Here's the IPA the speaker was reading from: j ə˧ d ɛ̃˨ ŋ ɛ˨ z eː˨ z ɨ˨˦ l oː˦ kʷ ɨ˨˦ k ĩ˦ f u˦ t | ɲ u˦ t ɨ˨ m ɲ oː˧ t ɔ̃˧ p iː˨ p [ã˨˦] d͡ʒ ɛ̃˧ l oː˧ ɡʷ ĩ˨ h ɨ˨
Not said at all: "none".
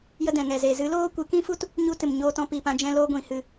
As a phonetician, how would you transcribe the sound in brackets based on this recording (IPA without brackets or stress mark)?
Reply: ã˧